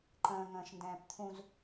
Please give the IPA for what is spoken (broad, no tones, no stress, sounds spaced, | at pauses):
ǃ ə̃ː ŋ ə̃ː ʃ n d ɛ̃ː p t̪ʰ ũ z